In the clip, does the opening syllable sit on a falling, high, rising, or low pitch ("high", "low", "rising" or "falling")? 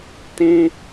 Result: high